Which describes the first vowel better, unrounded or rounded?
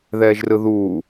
unrounded